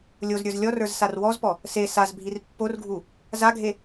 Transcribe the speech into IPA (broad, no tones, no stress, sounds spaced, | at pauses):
lʲ o z ɾʲ ə˞ z lʲ ɔ r ə˞ z s a r w ɔ z p ɔ | s e s a z bʱ i r pː o r ɡʱ u | z a ɡʱ e